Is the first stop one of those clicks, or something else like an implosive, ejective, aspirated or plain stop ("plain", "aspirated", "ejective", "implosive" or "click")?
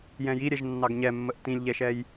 plain